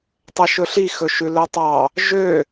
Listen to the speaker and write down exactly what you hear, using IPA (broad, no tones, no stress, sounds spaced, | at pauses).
tˤ ɛ ʃ ɵ ɬ i x ɵ ʃ ʉ l œ tˤ ɑ | ʒ ø